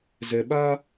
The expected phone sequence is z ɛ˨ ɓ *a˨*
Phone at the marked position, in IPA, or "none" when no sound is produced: a˦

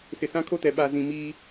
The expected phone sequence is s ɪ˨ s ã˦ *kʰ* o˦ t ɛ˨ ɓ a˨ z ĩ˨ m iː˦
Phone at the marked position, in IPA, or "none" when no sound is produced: kʰ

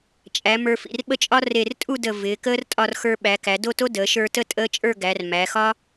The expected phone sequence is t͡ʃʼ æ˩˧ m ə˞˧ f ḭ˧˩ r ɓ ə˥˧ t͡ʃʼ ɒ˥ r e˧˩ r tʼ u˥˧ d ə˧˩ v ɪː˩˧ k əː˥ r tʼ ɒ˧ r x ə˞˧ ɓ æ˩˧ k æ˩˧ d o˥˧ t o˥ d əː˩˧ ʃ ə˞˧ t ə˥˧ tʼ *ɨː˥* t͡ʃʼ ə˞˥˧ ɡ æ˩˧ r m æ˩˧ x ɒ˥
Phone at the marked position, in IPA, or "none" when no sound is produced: əː˥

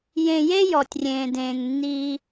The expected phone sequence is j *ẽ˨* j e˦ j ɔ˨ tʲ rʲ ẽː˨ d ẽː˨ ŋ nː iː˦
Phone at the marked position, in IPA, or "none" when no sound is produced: ẽ˨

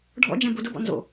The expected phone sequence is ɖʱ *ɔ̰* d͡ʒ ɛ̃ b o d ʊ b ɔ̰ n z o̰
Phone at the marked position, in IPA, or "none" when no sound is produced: ɔ̰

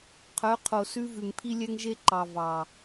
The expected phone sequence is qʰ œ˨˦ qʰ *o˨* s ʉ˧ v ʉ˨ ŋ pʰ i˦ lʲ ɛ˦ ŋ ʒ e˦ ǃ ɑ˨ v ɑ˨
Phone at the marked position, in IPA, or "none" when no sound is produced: o˨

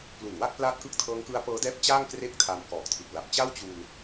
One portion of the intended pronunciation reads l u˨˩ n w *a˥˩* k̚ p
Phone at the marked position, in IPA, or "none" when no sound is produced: a˥˩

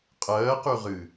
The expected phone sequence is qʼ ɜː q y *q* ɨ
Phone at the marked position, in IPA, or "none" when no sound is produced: ʁ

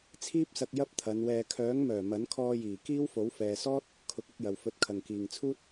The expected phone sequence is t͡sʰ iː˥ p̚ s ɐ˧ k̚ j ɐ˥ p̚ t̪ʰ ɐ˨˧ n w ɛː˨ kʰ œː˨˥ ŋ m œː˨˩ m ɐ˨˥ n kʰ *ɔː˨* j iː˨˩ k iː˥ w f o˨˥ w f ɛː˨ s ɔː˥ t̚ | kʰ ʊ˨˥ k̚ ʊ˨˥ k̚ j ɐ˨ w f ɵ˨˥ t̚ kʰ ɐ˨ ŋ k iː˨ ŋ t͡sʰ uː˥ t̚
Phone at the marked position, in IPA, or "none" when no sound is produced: ɔː˧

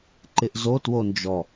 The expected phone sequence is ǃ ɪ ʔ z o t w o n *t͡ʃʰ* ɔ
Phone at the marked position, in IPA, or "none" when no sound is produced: d͡ʒ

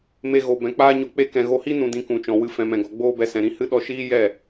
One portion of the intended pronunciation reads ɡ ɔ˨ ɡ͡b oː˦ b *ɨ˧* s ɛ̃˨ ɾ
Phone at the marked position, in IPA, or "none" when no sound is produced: ɛ˧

